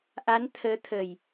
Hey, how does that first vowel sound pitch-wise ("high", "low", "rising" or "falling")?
rising